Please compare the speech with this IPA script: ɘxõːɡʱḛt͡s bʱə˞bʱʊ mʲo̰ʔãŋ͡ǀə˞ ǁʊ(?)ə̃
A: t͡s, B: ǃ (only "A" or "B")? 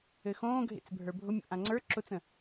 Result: A